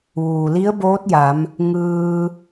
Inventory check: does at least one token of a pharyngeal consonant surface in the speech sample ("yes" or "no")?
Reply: no